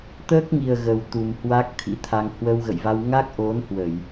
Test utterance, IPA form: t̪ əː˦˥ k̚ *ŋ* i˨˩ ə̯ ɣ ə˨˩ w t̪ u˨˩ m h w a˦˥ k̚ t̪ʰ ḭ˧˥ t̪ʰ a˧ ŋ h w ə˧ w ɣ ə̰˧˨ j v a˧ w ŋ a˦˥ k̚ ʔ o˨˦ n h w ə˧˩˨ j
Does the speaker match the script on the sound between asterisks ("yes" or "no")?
yes